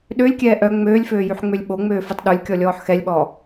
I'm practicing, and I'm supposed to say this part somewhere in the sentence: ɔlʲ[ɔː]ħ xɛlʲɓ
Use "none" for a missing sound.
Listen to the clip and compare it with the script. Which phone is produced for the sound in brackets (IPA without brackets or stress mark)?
ɔː